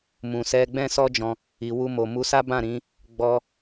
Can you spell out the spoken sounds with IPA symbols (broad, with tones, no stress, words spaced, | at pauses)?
mũ˨sɛ˧ ɡ͡bɛ̃˦sɔ˦d͡ʒɔ̃˧ | i˨wu˧mo˨mu˧ sa˦bã˦˨ɾĩ˨˦ | ɡ͡bɔ˧